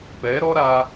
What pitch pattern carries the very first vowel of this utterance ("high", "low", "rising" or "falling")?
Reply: rising